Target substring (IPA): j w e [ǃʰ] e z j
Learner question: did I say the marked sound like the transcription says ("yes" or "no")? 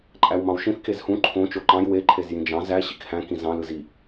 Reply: yes